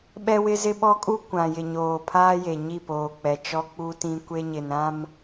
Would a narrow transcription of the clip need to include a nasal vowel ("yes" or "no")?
yes